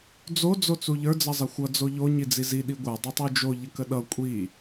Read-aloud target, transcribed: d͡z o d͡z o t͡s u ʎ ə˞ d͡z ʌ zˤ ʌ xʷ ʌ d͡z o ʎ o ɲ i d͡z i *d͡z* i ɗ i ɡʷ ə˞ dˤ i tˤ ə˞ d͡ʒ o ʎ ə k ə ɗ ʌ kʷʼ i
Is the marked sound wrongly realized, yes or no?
yes